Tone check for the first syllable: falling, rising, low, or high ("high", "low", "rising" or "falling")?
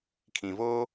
low